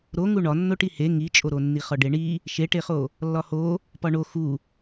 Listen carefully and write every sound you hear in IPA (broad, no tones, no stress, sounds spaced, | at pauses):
ɾ o ŋ u ɳ ɒ nː o ʈ i h e ŋ i t͡ʃʼ o ɾ o nː i χ ɒ ɖ e ɳ i | ʃ e ʈ e χ o | lː ɒ h o | p ɒ ɳ o x u